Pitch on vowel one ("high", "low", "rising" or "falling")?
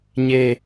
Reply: low